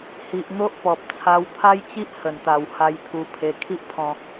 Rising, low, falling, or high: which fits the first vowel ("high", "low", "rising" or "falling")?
low